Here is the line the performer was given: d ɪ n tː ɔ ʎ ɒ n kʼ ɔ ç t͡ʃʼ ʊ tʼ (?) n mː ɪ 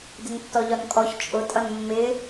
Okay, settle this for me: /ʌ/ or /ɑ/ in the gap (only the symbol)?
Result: ʌ